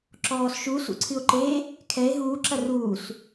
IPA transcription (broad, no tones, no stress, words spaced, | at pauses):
ǁɔːsʃu sṵǀʰɨo̯ǃe | kʰɛe̯ ɦuː ǁɐruːs